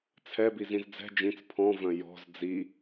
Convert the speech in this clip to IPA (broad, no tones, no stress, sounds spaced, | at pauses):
t͡sʰ ɛ b i z ĩ z d͡z ɛ̤ d͡ʒ ĩ t͡s pʰ ɔ̃ v œ̃ j ɔ̤ z d͡z i